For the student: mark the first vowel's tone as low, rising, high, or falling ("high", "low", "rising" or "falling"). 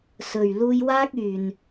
low